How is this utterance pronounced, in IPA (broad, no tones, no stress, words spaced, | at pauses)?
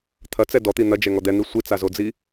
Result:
t̪ʰɐt͡sɛ dɔt̪i n̪ɐd͡ʒɛŋɔ d̪ɛn̪i sʷit͡sazod͡zi